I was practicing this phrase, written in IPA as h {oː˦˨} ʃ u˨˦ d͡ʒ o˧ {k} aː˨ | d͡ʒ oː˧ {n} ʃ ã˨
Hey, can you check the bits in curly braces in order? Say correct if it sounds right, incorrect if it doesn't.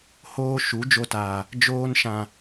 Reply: incorrect, incorrect, correct

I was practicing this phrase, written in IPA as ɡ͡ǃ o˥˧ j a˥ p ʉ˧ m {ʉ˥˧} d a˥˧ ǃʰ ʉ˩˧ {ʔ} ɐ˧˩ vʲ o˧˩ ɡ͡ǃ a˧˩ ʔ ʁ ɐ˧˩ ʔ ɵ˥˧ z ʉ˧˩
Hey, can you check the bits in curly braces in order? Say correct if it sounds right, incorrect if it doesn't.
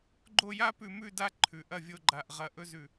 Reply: correct, correct

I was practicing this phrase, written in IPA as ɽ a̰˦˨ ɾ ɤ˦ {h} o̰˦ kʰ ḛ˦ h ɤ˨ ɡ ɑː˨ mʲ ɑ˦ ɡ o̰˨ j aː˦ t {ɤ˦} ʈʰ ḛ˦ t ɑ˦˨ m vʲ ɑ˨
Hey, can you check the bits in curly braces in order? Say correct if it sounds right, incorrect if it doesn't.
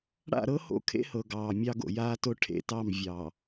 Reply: correct, incorrect

